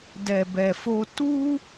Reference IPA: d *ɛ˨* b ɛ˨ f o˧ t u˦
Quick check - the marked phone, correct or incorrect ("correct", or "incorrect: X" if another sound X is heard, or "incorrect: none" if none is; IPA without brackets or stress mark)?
correct